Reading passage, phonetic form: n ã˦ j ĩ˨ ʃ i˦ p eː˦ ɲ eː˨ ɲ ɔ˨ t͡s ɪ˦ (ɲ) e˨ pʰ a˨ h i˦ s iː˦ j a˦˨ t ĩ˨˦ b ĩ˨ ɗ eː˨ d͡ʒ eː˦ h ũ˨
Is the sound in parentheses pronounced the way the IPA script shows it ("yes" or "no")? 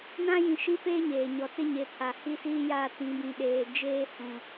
yes